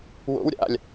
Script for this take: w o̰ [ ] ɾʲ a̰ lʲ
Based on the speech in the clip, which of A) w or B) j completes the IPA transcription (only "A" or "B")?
A